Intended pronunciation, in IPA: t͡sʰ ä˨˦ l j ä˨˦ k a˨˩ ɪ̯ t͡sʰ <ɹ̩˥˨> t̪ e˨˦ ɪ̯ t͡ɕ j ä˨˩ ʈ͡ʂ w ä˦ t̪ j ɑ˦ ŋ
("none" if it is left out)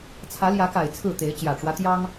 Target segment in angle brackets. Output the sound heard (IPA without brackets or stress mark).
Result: ɹ̩˥˨